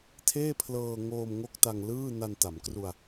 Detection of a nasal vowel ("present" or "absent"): absent